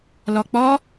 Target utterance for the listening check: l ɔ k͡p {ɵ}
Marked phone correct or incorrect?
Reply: incorrect: ɔ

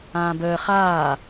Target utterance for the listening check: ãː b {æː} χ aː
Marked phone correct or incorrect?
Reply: incorrect: əː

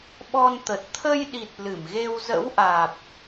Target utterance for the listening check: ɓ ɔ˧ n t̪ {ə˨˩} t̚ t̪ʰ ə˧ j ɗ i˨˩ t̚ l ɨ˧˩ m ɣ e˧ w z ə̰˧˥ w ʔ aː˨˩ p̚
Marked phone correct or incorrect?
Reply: correct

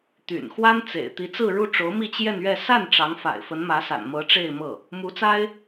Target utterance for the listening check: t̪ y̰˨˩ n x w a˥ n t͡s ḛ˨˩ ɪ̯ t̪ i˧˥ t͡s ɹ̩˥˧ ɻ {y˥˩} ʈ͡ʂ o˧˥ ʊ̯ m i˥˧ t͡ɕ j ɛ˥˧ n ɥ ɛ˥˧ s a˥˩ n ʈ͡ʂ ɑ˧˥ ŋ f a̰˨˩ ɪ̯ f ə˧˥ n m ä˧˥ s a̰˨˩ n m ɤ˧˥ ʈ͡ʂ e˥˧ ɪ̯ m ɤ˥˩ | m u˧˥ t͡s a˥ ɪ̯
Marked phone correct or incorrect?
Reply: incorrect: u˥˩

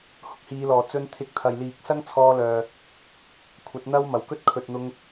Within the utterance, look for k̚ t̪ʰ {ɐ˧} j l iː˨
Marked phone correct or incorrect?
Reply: incorrect: ɐ˨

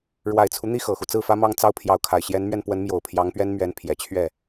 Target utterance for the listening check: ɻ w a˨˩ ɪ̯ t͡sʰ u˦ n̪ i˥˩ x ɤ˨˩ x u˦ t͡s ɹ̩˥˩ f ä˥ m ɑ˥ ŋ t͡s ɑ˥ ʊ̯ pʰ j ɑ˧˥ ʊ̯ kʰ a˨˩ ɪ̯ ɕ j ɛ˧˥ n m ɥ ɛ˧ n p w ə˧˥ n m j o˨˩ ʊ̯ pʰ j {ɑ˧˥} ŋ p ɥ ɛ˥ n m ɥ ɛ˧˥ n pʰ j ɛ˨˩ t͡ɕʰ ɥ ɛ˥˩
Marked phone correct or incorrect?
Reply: correct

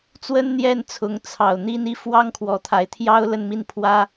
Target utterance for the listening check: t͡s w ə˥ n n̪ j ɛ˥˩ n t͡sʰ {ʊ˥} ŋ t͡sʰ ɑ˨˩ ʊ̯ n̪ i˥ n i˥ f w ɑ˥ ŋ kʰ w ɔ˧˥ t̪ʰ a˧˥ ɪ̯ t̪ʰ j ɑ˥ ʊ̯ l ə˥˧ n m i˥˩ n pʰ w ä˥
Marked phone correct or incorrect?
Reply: incorrect: ʊ˧˥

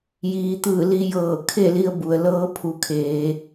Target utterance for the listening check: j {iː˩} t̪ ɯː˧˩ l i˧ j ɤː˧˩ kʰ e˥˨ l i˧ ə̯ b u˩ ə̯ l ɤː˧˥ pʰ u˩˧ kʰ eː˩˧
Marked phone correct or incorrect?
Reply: correct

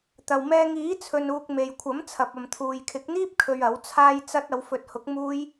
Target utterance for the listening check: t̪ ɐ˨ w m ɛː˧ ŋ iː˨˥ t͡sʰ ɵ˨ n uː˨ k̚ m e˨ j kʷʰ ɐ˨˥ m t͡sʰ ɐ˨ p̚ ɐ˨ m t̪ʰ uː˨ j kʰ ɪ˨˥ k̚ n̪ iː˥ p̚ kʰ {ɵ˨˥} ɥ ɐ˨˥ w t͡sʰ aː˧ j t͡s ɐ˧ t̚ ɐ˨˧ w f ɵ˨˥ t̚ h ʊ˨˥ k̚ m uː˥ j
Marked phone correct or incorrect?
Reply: incorrect: ɵ˧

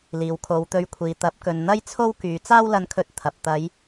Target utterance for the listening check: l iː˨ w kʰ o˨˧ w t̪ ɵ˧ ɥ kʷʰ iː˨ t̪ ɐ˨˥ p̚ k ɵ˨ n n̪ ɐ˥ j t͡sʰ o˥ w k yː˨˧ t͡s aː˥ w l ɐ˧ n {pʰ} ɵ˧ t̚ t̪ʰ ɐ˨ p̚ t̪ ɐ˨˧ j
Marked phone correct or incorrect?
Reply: incorrect: kʰ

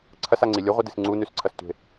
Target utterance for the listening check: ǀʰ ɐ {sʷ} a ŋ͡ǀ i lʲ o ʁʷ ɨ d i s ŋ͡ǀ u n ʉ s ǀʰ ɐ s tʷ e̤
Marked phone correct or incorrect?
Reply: incorrect: s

